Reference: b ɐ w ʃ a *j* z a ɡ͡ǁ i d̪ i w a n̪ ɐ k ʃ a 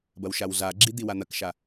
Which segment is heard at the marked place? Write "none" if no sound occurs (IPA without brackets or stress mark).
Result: w